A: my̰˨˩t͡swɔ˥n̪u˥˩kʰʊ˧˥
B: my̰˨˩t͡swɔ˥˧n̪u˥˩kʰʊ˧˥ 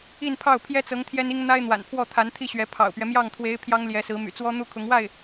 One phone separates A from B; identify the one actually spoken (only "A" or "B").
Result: A